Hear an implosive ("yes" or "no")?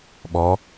yes